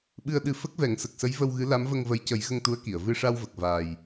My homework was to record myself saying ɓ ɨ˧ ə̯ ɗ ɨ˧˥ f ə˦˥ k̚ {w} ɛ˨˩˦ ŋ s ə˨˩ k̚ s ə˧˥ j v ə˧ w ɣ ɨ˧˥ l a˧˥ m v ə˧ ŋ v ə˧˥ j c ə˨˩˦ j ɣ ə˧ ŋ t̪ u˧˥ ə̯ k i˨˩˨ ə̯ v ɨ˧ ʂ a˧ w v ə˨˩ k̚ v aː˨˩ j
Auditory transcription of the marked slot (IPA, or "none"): v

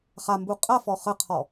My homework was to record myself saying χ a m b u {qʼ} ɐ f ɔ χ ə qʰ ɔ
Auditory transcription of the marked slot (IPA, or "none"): qʼ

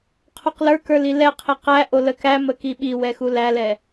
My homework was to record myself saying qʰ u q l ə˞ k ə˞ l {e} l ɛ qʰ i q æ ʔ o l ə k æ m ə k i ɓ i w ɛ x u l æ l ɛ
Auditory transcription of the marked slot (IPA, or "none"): i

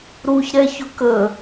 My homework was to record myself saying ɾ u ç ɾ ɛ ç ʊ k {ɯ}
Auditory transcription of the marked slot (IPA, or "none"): ə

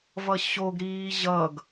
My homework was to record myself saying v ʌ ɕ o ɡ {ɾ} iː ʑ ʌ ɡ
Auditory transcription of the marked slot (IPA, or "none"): ɾ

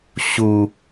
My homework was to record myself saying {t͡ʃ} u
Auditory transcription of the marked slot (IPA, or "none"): ɕ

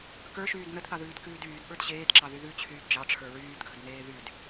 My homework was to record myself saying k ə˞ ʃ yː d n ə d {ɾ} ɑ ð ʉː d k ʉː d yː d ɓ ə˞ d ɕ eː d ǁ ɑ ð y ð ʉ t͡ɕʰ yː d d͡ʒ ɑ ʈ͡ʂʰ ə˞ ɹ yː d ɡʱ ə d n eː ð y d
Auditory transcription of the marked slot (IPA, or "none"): θ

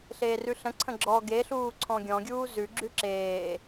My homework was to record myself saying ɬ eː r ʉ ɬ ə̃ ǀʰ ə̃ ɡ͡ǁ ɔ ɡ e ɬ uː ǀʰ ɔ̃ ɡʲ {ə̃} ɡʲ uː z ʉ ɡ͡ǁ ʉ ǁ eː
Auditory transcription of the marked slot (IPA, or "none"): ɔ̃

